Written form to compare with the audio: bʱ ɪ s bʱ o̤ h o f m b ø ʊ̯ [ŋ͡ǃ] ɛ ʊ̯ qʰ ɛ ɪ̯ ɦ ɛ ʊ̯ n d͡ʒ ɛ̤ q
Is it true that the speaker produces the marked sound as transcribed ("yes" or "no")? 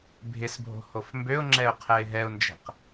no